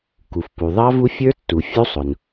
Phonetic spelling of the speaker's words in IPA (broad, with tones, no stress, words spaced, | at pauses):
ku˩fpu˩ðˤɑ˦˥ vu˦˥fʲə˞˦˥tːu˩ fʲu˦˥sˤʊ˩n